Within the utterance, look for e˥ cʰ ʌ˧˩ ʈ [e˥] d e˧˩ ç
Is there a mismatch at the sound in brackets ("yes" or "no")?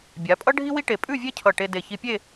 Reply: yes